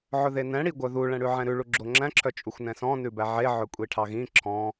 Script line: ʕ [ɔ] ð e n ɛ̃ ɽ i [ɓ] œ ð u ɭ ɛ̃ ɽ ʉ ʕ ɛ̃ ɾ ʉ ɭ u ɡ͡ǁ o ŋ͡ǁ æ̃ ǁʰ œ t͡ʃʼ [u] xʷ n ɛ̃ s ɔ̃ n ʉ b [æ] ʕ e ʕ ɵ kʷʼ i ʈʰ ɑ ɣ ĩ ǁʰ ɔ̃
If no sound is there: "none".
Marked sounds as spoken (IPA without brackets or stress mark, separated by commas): ɵ, ɡʷ, u, æ